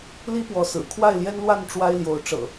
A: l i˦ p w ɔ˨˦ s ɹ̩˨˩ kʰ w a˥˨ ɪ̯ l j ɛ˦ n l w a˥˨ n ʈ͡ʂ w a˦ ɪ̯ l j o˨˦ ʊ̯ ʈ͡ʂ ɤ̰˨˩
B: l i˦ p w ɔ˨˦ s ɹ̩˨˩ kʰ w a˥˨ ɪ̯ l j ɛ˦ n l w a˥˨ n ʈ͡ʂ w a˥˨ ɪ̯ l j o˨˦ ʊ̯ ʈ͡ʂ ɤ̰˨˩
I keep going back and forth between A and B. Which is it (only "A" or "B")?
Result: A